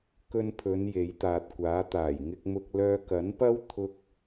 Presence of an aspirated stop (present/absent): present